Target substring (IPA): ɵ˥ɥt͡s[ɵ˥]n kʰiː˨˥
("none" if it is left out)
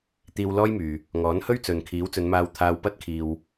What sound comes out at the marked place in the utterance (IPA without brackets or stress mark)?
ɵ˨